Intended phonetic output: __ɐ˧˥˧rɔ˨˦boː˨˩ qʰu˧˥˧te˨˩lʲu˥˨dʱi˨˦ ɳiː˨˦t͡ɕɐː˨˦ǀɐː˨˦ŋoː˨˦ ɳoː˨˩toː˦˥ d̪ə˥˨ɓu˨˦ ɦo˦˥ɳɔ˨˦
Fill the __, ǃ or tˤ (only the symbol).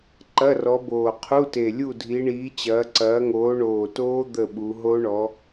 ǃ